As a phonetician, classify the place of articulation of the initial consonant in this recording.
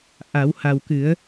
glottal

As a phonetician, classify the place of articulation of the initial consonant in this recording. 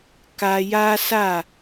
velar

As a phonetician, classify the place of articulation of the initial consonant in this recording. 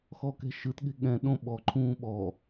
velar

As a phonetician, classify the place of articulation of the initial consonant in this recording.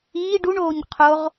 retroflex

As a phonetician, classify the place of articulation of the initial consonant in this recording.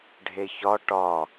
retroflex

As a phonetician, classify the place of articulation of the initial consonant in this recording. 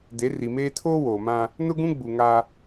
alveolar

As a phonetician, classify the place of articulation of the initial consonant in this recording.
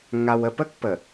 velar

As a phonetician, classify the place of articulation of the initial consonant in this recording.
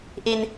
glottal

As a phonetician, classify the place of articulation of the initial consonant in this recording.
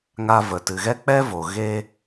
velar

